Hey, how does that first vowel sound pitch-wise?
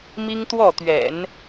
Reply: high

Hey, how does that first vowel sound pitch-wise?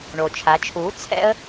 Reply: low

